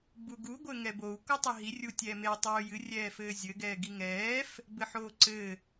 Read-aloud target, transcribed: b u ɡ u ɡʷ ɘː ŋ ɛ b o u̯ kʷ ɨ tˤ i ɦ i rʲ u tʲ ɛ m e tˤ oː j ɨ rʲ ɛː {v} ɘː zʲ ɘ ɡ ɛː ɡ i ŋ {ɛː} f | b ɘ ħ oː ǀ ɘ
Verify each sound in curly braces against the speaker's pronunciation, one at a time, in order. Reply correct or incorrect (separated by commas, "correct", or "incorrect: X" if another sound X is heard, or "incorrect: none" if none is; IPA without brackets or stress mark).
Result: incorrect: f, correct